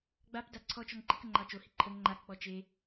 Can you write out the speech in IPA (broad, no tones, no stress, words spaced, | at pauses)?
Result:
ɡ͡bap daǀʰɔt͡ʃɔŋ ǃikəŋ͡ǃɑ t͡ʃohi ǃʰəŋ ŋ͡ǃakk͡pɔ t͡ʃe